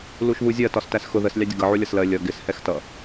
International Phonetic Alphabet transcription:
luʃβuzʲɜ tɒstæsxʊ ðəs lʲɑdʲʊɡʌ ʕulʲʌslɜ lʲʌ ɡɪs hɛxtʌ

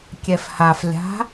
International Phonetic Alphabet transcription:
kʲɛfhaflʲa̤

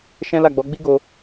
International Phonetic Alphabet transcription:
ʃɛ̃˦la˦˨ɡ͡bɔ˨˦ ɡ͡bi˦ɡo˧

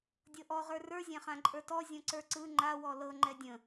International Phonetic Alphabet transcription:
dʲɤʔɔ ʁə˞rə˞ zʲãχãǃʼə˞tɔ zʲɔ̃ǀə˞ǀɯ ŋ͡ǃa wɔlɤ ŋ͡ǃɛdʲə̃

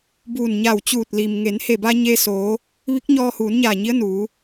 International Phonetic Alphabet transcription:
buː˧˩nɲa˧˩wt͡ɕuː˧˩t̚li˩m ŋe˩˧nhe˧˩ba˧ ɲe˧soː˩˧ | ʋi˧˥k̚ɲɔː˧huː˩˧nɲaː˧˩ ɲi˧˥ə̯nuː˩˧

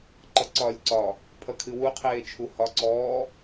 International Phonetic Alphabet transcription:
ǃʌǀɒːlʲǀɒ | pʰʌkʰɨwu qʰeːt͡ʃʰuhɒ ǀɔː

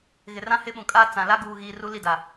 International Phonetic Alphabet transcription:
ɣɪ˨rã˦hɪ˦ ɓũ˨kʼaː˦ t͡sã˨ la˦ɡuː˨ɣiː˨ ru˦li˦˨da˨

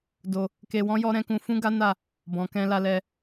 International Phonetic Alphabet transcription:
do˧ | ke˧wɔ̃˦ jɔ˦ɾɛ̃˦kũ˧ fũ˦ɡa˦ na˦˨ | bɔ̃˨kɛ̃˧ la˧lɛ˧

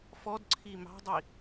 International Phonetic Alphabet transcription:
fɔdǀʰi mɑ̤dˤi

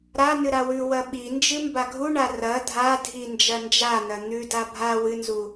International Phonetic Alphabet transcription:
ɾa nɨɾawʉ wɐɓind͡ʒɨ mbaɡʱuɳa rɐ dʱadʱi nd͡ʒɐnd͡ʒanɐ n̪ʉ dabʱa wɨnzu

